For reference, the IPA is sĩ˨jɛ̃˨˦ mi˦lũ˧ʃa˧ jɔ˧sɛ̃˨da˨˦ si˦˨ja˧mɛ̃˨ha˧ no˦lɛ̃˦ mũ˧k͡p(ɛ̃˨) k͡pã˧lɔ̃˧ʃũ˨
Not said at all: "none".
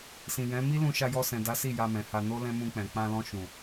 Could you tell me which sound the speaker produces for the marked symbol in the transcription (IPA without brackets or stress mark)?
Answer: ɛ̃˨